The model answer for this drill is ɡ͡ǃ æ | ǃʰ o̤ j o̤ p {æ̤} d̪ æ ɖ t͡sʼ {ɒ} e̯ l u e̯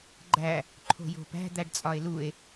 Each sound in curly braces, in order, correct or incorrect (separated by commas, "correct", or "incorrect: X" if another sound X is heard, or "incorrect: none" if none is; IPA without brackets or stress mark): correct, correct